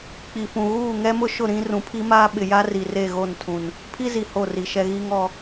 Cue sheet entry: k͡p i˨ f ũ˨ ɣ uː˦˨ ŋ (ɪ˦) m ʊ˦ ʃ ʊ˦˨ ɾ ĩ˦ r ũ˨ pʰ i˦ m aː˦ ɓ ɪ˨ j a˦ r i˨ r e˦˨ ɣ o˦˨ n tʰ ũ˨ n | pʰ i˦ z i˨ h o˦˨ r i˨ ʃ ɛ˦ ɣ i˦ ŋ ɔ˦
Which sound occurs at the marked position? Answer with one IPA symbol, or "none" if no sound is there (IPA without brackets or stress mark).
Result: ɛ˦